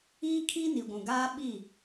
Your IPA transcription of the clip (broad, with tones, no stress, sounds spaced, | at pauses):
iː˦ kʰ i˦ n i˨ ɡʷ ũ˨ ɡ aː˦ ɓ i˦˨